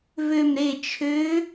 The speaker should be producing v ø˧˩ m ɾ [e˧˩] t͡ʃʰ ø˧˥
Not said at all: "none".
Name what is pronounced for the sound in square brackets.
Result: e˧˩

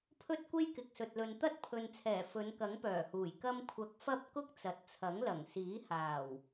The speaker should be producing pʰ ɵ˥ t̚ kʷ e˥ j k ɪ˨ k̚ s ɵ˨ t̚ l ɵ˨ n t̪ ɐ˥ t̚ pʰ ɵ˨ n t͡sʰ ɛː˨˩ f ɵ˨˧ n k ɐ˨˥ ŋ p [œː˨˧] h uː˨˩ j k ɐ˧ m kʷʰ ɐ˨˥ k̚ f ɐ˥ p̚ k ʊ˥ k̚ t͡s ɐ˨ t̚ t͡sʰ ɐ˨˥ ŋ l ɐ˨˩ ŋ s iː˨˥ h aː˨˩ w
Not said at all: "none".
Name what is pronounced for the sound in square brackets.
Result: œː˨˩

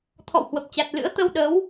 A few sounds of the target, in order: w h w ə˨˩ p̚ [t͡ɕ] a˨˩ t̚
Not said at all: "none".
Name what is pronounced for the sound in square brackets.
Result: t͡ɕ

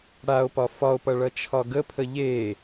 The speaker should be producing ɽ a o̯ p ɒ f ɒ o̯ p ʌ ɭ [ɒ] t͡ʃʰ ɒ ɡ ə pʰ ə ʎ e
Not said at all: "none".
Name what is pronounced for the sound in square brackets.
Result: ʌ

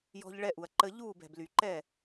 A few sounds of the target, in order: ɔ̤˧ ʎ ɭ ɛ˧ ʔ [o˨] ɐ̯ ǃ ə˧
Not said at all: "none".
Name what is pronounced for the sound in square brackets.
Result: u˨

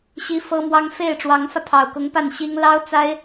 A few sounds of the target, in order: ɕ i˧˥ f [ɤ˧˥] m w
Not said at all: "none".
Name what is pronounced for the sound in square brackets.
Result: ɤ˥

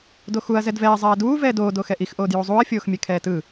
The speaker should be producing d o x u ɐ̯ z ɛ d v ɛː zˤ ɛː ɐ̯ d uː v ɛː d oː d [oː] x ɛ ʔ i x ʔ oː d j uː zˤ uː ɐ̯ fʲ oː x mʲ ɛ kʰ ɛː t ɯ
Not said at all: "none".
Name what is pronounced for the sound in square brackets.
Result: oː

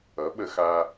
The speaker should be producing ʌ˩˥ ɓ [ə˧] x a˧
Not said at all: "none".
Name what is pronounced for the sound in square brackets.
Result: ə˧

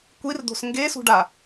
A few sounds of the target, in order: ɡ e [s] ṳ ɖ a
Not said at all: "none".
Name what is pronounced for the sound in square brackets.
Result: s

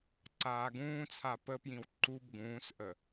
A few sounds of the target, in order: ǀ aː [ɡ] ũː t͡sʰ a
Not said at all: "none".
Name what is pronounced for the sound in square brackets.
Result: ɡ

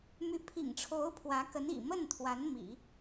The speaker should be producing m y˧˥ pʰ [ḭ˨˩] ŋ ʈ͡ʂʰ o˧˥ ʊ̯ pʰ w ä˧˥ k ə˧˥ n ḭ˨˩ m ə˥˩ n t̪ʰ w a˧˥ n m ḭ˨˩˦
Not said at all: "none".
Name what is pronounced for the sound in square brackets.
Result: ḭ˨˩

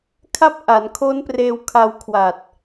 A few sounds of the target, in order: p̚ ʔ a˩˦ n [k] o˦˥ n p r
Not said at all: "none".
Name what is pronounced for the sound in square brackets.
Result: kʰ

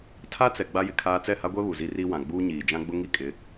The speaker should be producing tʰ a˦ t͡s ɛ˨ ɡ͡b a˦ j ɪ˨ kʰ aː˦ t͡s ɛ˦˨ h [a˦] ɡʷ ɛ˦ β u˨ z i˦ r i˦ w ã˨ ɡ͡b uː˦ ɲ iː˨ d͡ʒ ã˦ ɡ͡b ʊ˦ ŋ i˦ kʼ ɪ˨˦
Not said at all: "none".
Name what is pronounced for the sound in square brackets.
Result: a˦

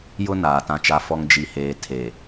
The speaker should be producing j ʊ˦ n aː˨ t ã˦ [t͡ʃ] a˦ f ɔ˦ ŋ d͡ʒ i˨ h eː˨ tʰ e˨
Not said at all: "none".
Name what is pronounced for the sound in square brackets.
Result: t͡ʃ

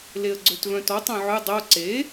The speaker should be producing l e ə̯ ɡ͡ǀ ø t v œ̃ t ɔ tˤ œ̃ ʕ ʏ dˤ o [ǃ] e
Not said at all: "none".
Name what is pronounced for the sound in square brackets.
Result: ǀ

